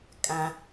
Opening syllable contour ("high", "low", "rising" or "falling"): low